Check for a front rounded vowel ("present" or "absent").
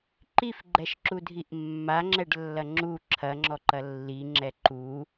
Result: absent